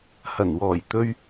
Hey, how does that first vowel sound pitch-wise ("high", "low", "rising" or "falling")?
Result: low